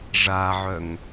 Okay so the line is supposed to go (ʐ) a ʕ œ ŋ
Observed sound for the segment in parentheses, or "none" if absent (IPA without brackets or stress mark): ʐ